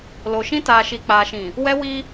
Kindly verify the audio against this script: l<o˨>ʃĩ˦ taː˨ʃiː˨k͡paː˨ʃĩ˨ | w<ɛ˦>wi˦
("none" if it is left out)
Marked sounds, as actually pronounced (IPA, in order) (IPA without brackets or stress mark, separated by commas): o˨, ɛ˦